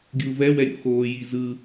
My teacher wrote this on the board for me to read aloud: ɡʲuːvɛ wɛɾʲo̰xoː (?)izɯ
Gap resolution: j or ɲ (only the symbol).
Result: j